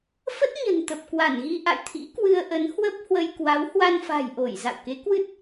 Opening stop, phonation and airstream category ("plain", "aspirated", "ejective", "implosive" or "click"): plain